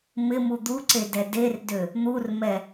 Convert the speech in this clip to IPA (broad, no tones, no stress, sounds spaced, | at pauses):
m ɪ m u d̪ u ǀ e d ɛ d e r d ø | n̪ u r m ɛ